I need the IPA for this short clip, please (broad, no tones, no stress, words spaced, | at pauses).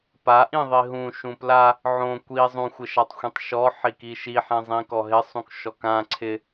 paʔĩ ðˤiɦũ ʃũpla | ʕõ kʷi zˤũxʷɪʃatˤxʷĩtˤ ʃɔ ħikiʃi ħɛ̃zˤĩkɔɦɪ sˤũkʃɔkã ǀʰɪ